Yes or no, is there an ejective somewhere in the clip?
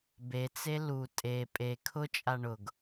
yes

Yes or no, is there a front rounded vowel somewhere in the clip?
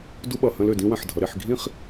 yes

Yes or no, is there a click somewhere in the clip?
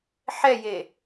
no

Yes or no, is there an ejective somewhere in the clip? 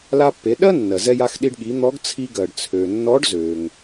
no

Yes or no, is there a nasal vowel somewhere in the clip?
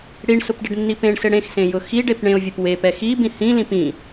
yes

